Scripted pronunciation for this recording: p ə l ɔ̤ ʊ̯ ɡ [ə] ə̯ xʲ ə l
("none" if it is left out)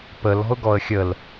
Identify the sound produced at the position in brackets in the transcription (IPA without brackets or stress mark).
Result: ɔ